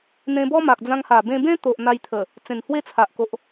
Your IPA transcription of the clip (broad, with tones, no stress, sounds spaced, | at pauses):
n̪ ẽ˧ b ɔ˦ m a˨ k̚ d͡z ã˧ ŋ h a˨˩ b ẽ˧ b ẽ˦ t̪ o˨ ʔ n̪ a˧ j t̪ʰ ə˨˩ | t͡s ẽ˨˩ n h w e˥˧ t͡sʰ a˨ ʔ k o˨ ʔ